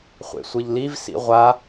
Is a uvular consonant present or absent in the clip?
present